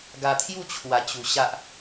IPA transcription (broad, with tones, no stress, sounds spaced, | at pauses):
ɡ a˧ t̪ʰ j u˥˧ t͡ɕʰ w a˨˩ t͡ɕ u˨˩ ɕ a˦ ʔ